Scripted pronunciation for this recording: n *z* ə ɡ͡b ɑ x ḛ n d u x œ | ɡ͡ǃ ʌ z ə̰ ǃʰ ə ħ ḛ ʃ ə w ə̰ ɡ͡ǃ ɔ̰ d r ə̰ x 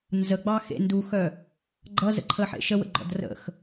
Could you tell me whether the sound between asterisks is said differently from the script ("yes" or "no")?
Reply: no